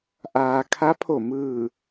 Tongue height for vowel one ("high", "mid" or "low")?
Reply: low